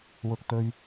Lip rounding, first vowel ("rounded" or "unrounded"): rounded